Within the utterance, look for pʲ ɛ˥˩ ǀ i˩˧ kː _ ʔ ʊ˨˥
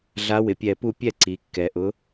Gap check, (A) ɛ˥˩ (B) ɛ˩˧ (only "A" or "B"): B